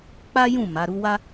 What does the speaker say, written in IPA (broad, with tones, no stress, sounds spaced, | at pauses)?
k͡p a˦ j ũ˦˨ m a˨˦ ɾ u˦ w a˦